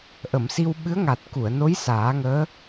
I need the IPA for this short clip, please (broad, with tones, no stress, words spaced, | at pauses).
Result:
ʔə˨˩˨msi˧w ɓɨ˧˥ə̯ŋa˨˩t̚ ku˨˩˨ə̯no˧˥j saː˨˩˦ŋəː˧˥